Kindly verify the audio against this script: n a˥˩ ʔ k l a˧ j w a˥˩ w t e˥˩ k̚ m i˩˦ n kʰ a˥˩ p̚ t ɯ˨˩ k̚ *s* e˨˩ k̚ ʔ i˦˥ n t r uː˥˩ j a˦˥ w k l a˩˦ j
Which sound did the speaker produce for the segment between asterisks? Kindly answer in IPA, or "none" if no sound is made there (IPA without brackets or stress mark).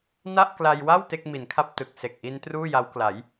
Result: s